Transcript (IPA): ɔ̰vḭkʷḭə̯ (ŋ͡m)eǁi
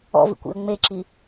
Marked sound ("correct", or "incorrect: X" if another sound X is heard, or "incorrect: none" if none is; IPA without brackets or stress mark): correct